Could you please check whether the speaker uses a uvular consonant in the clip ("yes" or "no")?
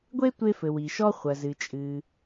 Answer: yes